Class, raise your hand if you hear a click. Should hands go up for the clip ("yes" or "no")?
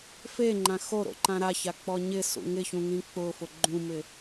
yes